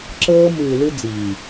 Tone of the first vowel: high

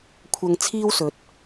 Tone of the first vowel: low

